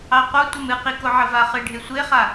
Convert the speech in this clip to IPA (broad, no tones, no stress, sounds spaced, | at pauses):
ɑ q o tʷ ə m ɨ q i k o ʕ ə v a χ ɨ ɖʱ e sʷ e χ a